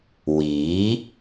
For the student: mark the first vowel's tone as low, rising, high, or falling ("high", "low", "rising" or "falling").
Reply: rising